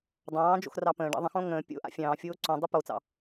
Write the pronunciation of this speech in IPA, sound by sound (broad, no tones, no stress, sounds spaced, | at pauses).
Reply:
dˤ ɑ̃ː d͡ʒ o̰ x r ɑ p ə̃ː ɖ ɑ̰ ðˤ ə̃ x õ ŋ ə̃ː pʲ o̰ ʔ a̰ fʲ ɑ̃ː fʲ oː ǀ õ dˤ ɯ p o t͡s ɑ̰